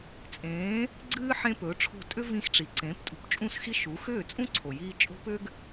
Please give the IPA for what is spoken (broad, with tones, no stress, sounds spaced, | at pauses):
t͡sʼ ẽː˩˥ | ɡ͡ǀ ɨː˥ ħ ẽ˥ p ɵː˩˥ ʈ͡ʂʰ o̤˥˩ tʼ ʏ˥ v ĩ˧ x ʈ͡ʂ i˩ ǀ ẽː˩˥ p tʼ ṳ˧ p t͡ʃʼ ũ˥˩ s x i˥ ʃ u˩˥ x ʏː˥˩ t͡sʼ ũ˥ ǀʰ o˩ j iː˧ t͡ʃʼ o̤˥ p ʏ˥ ɡ